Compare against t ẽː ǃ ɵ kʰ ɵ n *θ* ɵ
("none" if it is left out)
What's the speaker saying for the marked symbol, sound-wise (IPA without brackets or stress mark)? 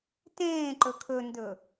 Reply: d